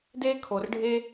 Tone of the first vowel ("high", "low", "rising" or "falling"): high